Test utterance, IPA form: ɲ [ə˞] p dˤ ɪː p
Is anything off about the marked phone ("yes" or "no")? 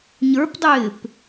no